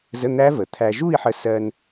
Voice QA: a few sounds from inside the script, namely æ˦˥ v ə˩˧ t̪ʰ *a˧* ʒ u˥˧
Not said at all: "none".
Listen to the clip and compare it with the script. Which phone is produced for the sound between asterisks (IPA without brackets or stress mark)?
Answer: æ˧